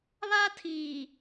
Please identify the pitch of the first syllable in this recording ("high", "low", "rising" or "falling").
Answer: high